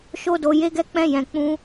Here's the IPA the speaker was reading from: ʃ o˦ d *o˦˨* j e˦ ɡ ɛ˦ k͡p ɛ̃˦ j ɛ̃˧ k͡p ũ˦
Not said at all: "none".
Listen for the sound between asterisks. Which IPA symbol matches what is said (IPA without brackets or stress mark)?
o˧